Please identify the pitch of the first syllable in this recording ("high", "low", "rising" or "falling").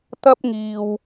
high